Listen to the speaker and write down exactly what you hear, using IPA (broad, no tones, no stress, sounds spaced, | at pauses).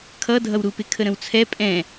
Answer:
kʰ ʌ dʱ ʌ w ɾ u p ɪ kʰ ə ɾ ə̃ w t͡sʰ ɛ pʼ ɛ̃